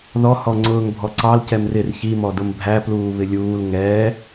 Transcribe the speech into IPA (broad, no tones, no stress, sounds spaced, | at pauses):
ð ɔ h ɔ ŋ͡ǀ ʊː ŋ bʱ ɔ ǀ ɑ l c ɛ m r ɪ r ç i m ɔ d ʊ m bʱ æ p l uː β ɪ lʲ uː l ŋ ɛː